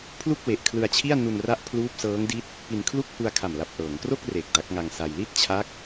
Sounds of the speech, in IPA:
pʰlu˥˩k̚we˨˩ʔkʰlɯ˧a̯t͡ɕʰi˥˩a̯ nu˧nra˦˥ʔ pʰluː˦˥p̚sɤː˦˥ŋdi˦˥t̚ | pi˧n kʰlu˥˩k̚ hu˧a̯kʰa˨˩m la˨˩p̚ʔɤː˩˦ŋkro˥˩k̚ re˨˩k̚da˦˥k̚ŋa˧ŋsa˧j li˥˩t̚t͡ɕʰa˦˥k̚

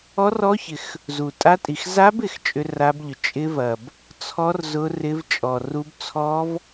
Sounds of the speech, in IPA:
ɔ˦˥rɔ˦˥çɪ˨˩x | zu˨˩tʼa˦˥tʼi˨˩x za˦˥bɪ˨˩x t͡ʃʼʏ˦˥ra˦˥bʎʏ˨˩ t͡ʃʼɪ˦˥vɐ˨˩b | t͡sʰɔ˦˥r zʊ˦˥rɪ˦˥vt͡ʃʼɔ˨˩ru˦˥b t͡sʰɔ˦˥v

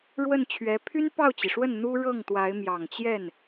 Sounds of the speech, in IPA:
ɻwə˥˩nt͡ɕʰɥɛ˧˥ pʰy˥n pɑ˥˩ʊ̯t͡ɕi˩ʂwə˥˩n n̪u˥ ɻɤ˥˩ŋt̪wa˧˥ɪ̯ mjɑ˨˩ŋt͡ɕjɛ˥˩n

